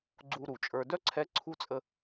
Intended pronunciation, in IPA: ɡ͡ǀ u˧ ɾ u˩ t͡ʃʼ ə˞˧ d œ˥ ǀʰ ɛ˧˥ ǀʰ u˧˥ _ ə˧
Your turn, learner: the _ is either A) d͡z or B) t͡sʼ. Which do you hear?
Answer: B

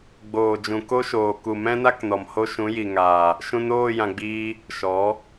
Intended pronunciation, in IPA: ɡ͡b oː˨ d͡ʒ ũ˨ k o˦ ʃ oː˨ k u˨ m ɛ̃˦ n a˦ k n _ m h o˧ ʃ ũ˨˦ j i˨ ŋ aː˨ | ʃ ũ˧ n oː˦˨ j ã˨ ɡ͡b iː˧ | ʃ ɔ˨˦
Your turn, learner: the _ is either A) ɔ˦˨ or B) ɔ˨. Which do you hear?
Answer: B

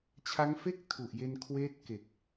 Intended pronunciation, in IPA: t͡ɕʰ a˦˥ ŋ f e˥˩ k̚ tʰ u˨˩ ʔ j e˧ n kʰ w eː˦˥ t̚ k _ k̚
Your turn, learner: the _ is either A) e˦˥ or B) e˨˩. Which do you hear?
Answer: B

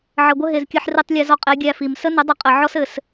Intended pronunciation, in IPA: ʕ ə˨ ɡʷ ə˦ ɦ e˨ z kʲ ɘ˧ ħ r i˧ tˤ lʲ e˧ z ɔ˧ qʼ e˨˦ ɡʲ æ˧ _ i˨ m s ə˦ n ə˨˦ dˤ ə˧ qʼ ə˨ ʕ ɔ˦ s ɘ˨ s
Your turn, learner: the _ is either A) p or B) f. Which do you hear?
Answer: B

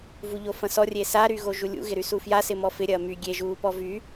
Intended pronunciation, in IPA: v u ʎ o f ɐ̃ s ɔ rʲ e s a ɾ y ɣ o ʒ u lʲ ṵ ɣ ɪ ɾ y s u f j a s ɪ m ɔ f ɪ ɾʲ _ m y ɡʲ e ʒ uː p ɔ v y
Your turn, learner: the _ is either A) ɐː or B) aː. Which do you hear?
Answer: A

